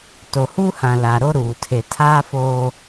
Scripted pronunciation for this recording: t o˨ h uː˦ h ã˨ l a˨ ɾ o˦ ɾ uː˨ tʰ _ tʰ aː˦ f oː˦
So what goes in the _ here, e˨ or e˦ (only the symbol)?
e˨